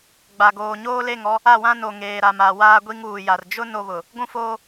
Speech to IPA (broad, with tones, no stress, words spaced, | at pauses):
ɡ͡ba˨ ɡoː˨ɲoː˦le˦˨ŋɔ˦ | a˦˨wã˦ no˨ ŋeː˨ɾa˨ma˨ waː˦ɡʷi˦ŋuː˨ja˨r d͡ʒʊ˦ no˦βʊ˨ | ɡʷũ˦foː˦